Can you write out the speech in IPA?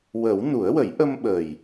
w ə˨˩˦ w n u˨˩˦ ə̯ w ə˨˩˦ j ʔ ə˧ m ɓ ə˨˩ j

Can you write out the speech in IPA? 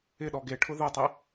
ɪ ɗ ɔ ɡ e ʈʰ ʊ ð ʊ tˤ e

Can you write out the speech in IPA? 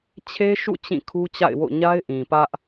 t͡ɕʰ e˦ ʃ ṵ˦˨ t͡ɕ ĩ˦˨ kʰ u˦ t͡ɕ a̰˦˨ ɪ̯ w o̰˦˨ ɲ a˦ ɪ̯ ʔ ĩ˨ p ä˦ ʔ

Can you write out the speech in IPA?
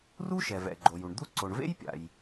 r u˥ ʃ ɛ˩ v ɛ̰˩ ɡ͡ǃ o˩ j u˩ ɳ d̪ u˥ ǀ o˩ ɳ v ḛ˥ j pʲ a̰˩ j

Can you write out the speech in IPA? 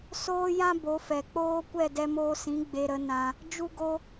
s oː˦ j ã˦ b o˨˦ f ɛ˨ k͡p oː˦ kʷ ɛ˦˨ d ɛ˧ m oː˧ s ĩ˨˦ ɡ͡b e˧ ɾ ə˨˦ n ã˦ | d͡ʒ u˦ ɡ o˦

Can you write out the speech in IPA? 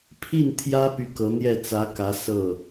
pʰ i˥˩ n t̪ʰ j ä˥ p y˥˩ k ɤ˧˥ n̪ j ɛ˥˩ t͡s ä˧˥ k ä˧˥ s ɤ˥˩

